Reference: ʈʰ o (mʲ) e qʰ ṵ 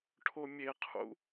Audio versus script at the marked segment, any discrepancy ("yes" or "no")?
no